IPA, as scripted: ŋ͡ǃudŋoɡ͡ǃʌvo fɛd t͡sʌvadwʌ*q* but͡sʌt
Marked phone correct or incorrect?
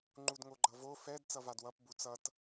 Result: incorrect